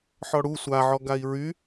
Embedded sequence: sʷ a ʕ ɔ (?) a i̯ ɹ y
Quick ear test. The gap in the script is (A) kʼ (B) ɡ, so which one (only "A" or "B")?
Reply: B